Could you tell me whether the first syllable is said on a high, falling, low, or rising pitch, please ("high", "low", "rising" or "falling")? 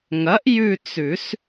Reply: rising